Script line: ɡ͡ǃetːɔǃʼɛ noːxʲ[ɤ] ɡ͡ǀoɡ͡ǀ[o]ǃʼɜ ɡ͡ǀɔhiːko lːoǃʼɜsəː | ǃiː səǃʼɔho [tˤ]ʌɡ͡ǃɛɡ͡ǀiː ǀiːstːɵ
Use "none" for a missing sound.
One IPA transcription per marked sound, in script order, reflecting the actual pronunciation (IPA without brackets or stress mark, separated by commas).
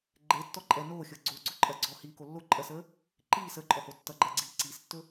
ɤ, ɵ, tː